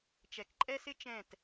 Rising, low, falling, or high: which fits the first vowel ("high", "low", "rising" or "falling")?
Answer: low